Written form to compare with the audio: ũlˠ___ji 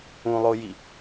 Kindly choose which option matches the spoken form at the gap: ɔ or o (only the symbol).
o